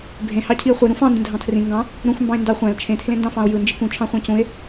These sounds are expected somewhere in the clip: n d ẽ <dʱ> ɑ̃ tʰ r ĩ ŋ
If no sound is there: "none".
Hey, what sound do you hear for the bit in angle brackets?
dʱ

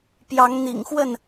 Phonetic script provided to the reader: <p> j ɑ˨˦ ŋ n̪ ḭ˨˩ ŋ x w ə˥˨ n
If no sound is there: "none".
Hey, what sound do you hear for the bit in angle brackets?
p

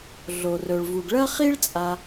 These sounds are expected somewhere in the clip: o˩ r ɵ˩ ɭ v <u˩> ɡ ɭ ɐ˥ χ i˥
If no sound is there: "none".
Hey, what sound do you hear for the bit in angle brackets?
u˩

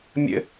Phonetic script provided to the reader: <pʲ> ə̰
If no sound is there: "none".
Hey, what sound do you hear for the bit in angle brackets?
mʲ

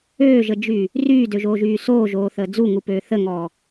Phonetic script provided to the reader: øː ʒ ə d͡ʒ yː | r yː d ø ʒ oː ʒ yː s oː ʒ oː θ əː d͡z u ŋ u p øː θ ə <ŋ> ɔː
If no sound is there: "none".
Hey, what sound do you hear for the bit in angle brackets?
ŋ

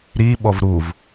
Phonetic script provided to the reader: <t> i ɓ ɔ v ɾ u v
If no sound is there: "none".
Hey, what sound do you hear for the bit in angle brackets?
ɾ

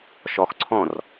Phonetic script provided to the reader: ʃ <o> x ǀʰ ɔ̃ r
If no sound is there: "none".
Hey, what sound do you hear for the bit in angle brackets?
ɔ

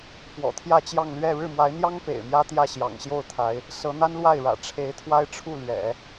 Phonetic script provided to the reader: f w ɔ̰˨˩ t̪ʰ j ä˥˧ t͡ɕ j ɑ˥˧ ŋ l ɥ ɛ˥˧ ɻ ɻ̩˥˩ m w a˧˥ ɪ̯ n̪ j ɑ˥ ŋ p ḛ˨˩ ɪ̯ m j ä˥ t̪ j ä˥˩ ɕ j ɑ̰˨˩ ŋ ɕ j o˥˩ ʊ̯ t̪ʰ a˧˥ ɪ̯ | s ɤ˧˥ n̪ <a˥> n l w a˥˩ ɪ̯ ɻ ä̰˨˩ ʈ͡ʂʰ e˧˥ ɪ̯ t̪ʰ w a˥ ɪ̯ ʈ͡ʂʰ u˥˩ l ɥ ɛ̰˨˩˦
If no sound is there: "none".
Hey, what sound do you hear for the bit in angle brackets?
a˥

